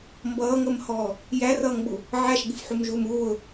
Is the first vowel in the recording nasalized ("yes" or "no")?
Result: no